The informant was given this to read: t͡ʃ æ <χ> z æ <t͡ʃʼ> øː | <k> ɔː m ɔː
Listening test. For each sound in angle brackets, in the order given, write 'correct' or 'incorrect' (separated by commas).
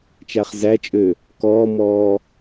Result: correct, correct, correct